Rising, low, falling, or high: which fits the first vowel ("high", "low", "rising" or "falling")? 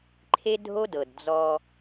high